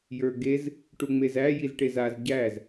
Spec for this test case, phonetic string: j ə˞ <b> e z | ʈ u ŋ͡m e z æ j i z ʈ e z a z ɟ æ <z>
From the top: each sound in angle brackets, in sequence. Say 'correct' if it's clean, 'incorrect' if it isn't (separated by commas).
incorrect, correct